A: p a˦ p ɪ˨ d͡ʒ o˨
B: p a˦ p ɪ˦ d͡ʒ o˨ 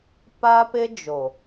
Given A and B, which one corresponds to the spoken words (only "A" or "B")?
B